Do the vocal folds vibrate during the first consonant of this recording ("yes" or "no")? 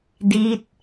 yes